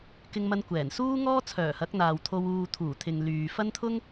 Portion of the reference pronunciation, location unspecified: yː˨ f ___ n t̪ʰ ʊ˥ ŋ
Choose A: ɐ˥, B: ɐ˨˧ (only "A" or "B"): A